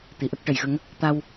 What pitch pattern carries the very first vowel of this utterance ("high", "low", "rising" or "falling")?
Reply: low